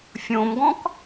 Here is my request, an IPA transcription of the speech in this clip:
fʲ õ m ɡ ɔ̃ k

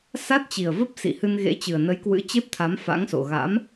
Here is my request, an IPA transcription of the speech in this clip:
s a˦˥ t̚ t͡ɕ i˨˩ ə̯ v ə˦˥ p̚ s ḭ˧˨ h ɨ˧ n ɣ ḛ˧˥ t͡ɕ ɨ˨˩ ə̯ n ə˨˦ j k w ɨ̰˧˥ t͡ɕ e˦˥ p̚ t̪ʰ a˨˦ m f a̰˧˥ ŋ s o̰˧˨ ɣ a̰˧˥ m

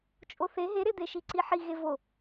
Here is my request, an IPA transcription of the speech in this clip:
t͡ʃʼ o θ e ɦ e ɾ e d̪ e ʃ i ǀ i ħ i ɣ e v o

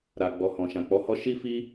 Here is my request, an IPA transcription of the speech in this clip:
ɾ a˨ ɡ͡b ɔ˨ h ɔ̃˨ ʃ ã˨ k͡p ɔ˨˦ h ɔ˦ ʃ i˦ f i˦

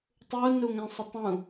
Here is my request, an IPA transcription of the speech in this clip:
tˤ u n u ŋ ɛ̃ sˤ ə tˤ ũ

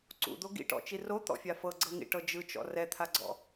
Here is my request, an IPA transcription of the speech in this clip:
ǀ ṵ d̪ o ɡ ḭ ʈ ɔ̰ t͡ʃ i r o t̪ ɔ̰ fʲ a f ɤ ɡ͡ǀ ɤ ŋ ḭ ʈ ɤ d͡ʒ ɯ t͡ʃ ɔ̰ r ɛ t̪ʰ a ɡ͡ǀ ɔ̰

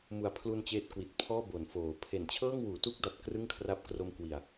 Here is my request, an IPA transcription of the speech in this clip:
m u˨˩ a̯ pʰ l u˧ n t͡ɕ eː˦˥ t̚ k w i˨˩ t̚ pʰ ɔː˥˩ b o˩˦ n f oː˩˦ pʰ e˩˦ n t͡ɕʰ ɤː˥˩ ŋ w uː˩˦ t u˦˥ k̚ d a˨˩ p̚ k r ɯ˥˩ ŋ kʰ r a˦˥ p̚ k r o˧ m k w i˨˩ a̯

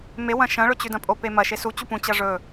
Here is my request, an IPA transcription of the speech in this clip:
m e w ɐ̃ ʃ ɐ̃ ɭ ɵ t͡ɕ ʉ d ɐ̃ pʼ o p e m ɐ ʃ e s u t͡ɕ u p ũ t͡ɕ ɐ ʐ ɵ

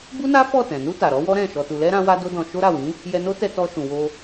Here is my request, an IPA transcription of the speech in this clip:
b u˦ n a˦ f ɔ˦˨ t ɛ̃˨ n u˧ t a˨ ɾ ɔ˨˦ w ɔ˦ ɾ ɛ̃˦˨ ʃ ɔ˨ t u˨ l ɛ˧ ɾ ã˦ w a˦ d o˦ d ɔ̃˧ ʃ o˦ ɾ a˦˨ w ĩ˨˦ | j ɛ˧ n o˦ t ɛ˧ t ɔ˧ ʃ ũ˨ w o˧

